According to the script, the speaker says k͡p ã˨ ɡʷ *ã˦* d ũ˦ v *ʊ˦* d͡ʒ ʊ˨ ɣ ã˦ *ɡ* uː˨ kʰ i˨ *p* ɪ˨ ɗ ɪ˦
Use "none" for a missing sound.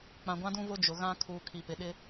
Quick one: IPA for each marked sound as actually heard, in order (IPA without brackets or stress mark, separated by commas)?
ã˦, ʊ˦, kʰ, p